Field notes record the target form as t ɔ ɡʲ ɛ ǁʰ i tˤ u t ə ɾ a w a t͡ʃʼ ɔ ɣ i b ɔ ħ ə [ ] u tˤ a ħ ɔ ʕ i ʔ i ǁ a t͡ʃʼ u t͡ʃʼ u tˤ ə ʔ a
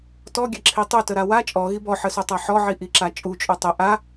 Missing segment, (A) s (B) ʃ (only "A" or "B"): A